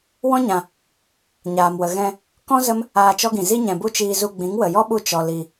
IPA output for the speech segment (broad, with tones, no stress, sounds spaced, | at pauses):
w ɔ̃˦ ɲ ã˨ | ɲ aː˨ m w ə˨ ɣ ɛ̃˧ | k ɔ̃˦ z ə˦ m | aː˧ t͡ʃ ɔ˦ ɡ ĩ˨ z i˦ ɲ ɛ̃˨ b u˦ t͡ʃ iː˧ z u˧ ɡ͡b ĩ˨˦ ŋ w ə˨ j ɔ˦ ɓ u˧ t͡ʃ ɔ˨ l i˨